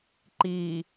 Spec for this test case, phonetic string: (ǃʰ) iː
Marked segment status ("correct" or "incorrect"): incorrect